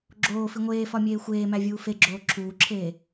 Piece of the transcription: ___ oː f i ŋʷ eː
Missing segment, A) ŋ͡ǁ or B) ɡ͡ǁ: B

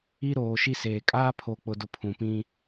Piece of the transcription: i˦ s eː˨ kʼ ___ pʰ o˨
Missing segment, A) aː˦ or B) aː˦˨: A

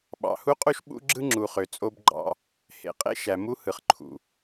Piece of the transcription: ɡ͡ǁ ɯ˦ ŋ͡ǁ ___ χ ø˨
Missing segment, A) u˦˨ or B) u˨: B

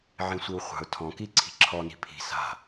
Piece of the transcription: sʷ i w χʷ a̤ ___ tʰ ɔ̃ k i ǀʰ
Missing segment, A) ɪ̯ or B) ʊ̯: B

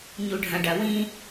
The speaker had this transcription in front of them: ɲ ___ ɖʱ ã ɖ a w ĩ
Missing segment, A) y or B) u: B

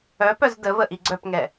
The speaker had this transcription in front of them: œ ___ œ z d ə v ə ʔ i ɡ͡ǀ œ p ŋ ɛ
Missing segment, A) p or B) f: A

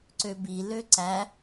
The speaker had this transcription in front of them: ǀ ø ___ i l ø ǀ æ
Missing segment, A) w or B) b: B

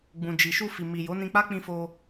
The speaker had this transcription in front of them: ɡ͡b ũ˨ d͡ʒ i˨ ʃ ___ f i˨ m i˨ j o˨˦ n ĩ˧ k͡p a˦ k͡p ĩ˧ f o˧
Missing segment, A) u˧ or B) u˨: A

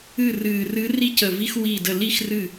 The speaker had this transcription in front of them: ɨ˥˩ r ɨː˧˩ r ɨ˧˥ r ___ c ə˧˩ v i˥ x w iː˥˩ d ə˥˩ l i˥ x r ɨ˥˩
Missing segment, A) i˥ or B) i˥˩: A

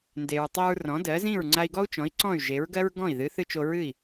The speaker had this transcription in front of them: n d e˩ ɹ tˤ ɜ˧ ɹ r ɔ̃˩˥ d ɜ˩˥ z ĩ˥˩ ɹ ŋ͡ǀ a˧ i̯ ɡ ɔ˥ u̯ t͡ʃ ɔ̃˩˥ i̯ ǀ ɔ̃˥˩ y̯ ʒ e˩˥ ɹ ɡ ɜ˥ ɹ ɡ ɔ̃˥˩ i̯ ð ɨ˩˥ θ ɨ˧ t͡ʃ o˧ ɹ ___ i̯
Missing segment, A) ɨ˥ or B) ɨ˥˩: B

